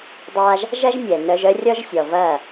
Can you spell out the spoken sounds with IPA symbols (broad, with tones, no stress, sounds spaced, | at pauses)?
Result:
dˤ a˦ ʒ | ʒ ɐ˦ ʒ mʲ ɛ˨ n œ˧ ʒ œ˦ rʲ ɔ˦ ʒ sʲ ɔ˨ v ɐ˦˨